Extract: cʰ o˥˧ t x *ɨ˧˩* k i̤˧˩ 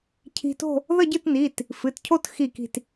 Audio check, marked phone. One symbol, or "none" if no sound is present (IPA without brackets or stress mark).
i˧˩